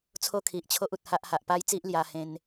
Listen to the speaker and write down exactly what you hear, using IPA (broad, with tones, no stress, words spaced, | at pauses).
t͡sʰo˦kʰi˨ʔt͡ɕʰo˦ʔ u˨t̚ha˦ʔha˨ʔ pa˦jt͡si˦ʔ lja˧ hẽ˦n